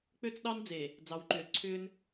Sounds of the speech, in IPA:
k͡p ø˦ t͡s ɗ ɑ˦ n d͡z e˨ | d͡z ɑ˨˦ w ǃ ʏː˨ l ǀʰ ʏː˦ n

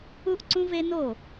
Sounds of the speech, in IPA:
u˥ ʔ ǀ ũ˥ v e˥ n o˥˩

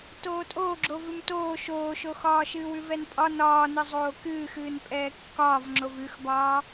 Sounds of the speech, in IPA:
t oː tʼ oː ɡ͡ǁ o v ʉ m t oː ʃ oː ʃ o x ɒː ʃ ɨː w ʉ v ɛ n pʼ ɒ n ɒː n ɨ zˤ oː k ɨː x ɨː n pʼ ɛː kː ɒː v ŋ͡ǁ o v ʉ x b ɒː

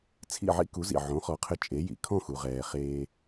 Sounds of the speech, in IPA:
t͡sʰ ḭ˥˩ ʕ ḭ˥ k u˩˥ z ḭ˩ ʕ õ˩˥ χ ɔ˩˥ qʰ ɘ˧ t͡ʃʼ e˩˥ j ḭ˩ kʰ ɔ̃˥˩ x u˩ ʁ ɛː˩ χ eː˧

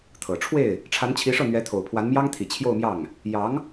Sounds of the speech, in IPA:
t̪ʰ ɤ˨˩ ʈ͡ʂʰ w e˥˩ ɪ̯ | ʈ͡ʂʰ a˧˥ n t͡ɕʰ i˧˥ ʂ ɤ˥˩ n̪ ɥ ɛ˧˥ t̪ʰ o˨˩ ʊ̯ pʰ w a˧˥ n m j ɑ˥ ŋ t̪ʰ i˨˩ t͡ɕʰ j o˥˧ ʊ̯ m j ɑ˥˩ ŋ | j ɑ˧˥ ŋ

